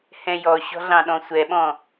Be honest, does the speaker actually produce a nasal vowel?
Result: yes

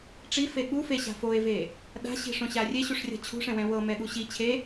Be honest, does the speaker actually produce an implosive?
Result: yes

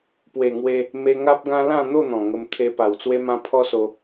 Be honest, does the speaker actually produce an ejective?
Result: no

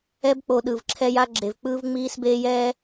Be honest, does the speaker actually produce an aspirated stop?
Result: yes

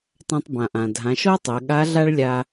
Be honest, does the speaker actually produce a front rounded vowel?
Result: no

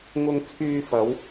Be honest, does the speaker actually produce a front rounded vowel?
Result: yes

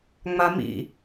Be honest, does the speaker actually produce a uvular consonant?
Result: no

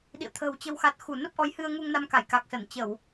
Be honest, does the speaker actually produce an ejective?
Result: no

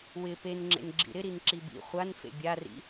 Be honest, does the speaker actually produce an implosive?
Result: no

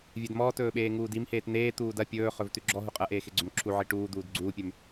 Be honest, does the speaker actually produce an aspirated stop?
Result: yes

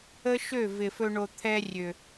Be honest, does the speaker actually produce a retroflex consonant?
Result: yes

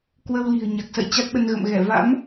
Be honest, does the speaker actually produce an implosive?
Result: yes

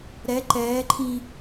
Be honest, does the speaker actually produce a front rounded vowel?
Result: no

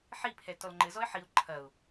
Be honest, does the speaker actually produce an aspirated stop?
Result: yes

